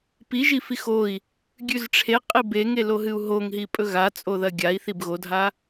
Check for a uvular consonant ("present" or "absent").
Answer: present